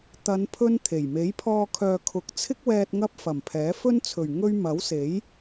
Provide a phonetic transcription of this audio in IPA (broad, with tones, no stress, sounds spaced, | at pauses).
t̪ ɐ˨˧ n pʰ ɵ˥ n t̪ʰ e˨˩ j m e˨˥ j pʰ ɔː˧ kʰ œː˨ kʰ ʊ˨˥ k̚ t͡sʰ ɪ˥ k̚ w ɛː˧ t̚ ŋ ɐ˥ p̚ f ɐ˨˩ m pʰ ɛː˨˥ f ɵ˥ n t͡sʰ ɵ˨˩ ɥ ŋ ɵ˥ ɥ m ɐ˨˥ w s e˨˥ j